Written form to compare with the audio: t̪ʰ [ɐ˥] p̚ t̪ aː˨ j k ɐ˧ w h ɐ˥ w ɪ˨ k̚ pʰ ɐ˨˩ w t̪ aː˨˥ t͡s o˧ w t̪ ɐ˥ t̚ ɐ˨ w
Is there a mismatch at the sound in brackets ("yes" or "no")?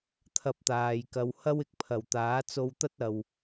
yes